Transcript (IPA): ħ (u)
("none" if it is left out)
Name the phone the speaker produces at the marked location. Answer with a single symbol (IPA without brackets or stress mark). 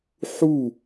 u